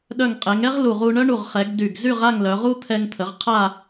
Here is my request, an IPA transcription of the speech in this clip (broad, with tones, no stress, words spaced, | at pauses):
ɗœ˧˩ŋqʼɛ˩˧ŋɛ˥ʁ lu˧˩ʁu˧ ɳœ˥ɳu˧˩ʁ χɛ˩˧ɡ dy˧˩ɡ zy˥˧ʁa˥˧ŋlœ˩˧ʁu˥ t̪ʰɛ˧ŋt̪ʰə˩˧ʁ qʰa˥˧